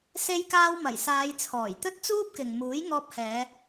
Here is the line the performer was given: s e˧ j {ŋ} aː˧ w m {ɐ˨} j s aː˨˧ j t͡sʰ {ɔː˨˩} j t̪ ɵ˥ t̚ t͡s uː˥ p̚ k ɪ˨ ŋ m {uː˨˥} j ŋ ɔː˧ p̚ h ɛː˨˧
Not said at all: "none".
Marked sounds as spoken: k, ɐ˨˩, ɔː˨˩, uː˨˥

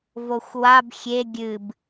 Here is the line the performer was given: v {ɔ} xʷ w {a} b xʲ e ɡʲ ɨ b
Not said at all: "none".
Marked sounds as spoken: o, a

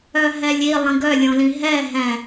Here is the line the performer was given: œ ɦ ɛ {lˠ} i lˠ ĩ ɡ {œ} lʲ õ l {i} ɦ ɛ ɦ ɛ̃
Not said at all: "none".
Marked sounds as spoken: lʲ, œ, ĩ

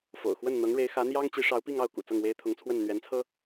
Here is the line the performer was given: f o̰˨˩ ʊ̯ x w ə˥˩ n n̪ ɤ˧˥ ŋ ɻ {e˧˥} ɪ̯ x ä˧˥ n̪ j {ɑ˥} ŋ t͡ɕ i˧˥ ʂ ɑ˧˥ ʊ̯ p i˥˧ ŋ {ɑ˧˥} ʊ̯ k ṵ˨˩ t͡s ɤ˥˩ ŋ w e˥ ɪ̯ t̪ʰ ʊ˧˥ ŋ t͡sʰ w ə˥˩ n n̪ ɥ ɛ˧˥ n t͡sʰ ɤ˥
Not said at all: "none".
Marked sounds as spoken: e˧˥, ɑ˥, ɑ˥˩

